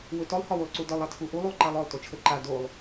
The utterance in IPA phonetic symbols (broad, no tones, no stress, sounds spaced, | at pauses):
w ɵ t ɔ lˠ h ɒ w u lˠ ǀ u d ɒ lˠ a tʰ u ʔ u lˠ u lˠ ǃ a lˠ ɔ lˠ t o t͡ʃʰ ə ǃ a d o lˠ